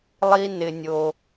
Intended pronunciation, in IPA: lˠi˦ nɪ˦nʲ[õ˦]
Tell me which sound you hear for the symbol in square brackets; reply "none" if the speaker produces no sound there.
o˦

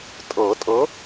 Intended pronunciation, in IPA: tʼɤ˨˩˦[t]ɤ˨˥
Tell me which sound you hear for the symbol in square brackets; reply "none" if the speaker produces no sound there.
tʼ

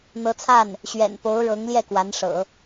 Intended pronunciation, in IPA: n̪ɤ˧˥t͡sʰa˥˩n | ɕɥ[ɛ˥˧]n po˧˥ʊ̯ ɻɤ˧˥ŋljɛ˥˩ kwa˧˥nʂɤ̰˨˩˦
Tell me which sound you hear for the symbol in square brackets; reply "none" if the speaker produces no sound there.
ɛ̰˨˩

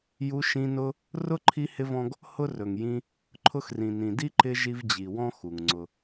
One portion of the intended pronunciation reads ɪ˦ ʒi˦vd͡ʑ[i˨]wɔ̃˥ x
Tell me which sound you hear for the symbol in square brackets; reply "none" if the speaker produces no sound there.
i˨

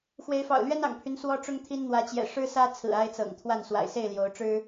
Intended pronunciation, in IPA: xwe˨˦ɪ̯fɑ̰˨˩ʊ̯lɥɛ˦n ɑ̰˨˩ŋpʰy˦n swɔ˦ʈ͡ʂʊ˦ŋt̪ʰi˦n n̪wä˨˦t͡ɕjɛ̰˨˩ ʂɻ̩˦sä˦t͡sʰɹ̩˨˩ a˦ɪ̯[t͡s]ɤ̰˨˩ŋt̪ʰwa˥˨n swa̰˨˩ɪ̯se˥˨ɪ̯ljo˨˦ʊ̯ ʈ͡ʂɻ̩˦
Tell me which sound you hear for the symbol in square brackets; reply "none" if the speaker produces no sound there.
t͡s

